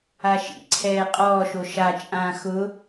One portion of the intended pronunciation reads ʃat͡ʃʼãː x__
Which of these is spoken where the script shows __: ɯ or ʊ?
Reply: ʊ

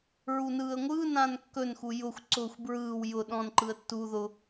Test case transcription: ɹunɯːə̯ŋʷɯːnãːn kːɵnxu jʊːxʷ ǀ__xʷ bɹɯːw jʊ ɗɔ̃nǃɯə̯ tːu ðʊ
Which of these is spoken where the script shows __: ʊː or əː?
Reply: ʊː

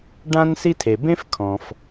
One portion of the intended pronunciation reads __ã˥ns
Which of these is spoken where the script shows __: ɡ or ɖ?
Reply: ɖ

